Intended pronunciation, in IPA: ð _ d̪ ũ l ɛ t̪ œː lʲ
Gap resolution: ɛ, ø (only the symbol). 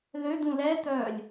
ø